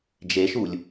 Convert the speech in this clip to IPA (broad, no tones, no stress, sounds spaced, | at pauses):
d͡ʒ e ʃ u lʲ